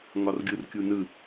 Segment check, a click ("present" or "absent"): absent